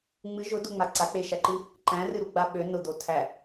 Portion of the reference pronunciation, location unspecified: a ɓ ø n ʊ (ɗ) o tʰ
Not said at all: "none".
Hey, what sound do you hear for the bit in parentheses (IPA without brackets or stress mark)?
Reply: d̪